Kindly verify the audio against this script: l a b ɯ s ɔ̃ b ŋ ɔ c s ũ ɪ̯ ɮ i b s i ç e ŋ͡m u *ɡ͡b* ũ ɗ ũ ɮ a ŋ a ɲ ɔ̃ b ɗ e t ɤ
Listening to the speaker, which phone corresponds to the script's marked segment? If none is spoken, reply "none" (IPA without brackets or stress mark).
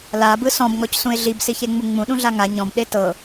ŋ͡m